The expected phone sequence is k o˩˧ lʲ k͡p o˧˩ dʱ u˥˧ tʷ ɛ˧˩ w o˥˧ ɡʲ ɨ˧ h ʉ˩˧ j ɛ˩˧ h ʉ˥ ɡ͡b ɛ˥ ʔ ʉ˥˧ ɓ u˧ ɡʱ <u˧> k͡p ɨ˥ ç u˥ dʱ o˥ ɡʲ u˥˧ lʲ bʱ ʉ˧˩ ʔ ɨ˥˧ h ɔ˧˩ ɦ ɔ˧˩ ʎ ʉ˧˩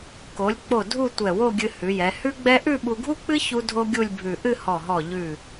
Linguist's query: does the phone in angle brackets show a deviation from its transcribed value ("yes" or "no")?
yes